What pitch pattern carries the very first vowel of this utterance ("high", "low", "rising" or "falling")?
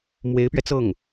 rising